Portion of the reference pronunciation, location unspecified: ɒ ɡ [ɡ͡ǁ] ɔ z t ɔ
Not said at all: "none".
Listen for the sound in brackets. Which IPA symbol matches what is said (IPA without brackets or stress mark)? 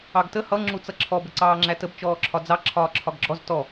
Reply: ɡ͡ǁ